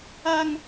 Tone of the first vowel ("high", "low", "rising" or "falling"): high